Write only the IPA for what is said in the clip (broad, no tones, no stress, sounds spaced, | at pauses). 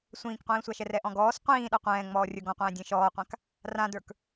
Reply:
sʷ ĩː k qʷ ĩː sʷ a ʃ ɛ r ɛ ʔ ɔ̃ ɡ ɔː s qʷ ĩː ɗ a qʷ ɛ̃ː ŋ͡m ɔː rʲ ə˞ ɡ ɔ̃ qʷ ɛ̃ː dʲ ɛ̃ ʃ ɔː qʷ ã k | r ã d ə˞ k